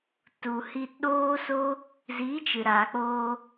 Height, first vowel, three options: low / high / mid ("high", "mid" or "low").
high